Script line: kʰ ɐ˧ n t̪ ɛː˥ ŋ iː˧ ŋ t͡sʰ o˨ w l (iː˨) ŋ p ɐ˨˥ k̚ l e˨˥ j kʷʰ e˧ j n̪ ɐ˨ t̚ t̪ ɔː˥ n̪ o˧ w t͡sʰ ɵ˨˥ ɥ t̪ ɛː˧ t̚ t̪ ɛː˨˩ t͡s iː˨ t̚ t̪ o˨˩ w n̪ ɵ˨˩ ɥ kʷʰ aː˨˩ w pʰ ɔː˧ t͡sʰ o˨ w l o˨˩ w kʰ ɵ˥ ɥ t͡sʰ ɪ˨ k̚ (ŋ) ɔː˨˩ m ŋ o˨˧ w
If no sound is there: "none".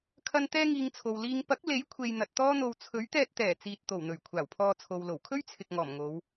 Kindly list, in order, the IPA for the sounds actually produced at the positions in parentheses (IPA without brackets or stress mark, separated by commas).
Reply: iː˨, ŋ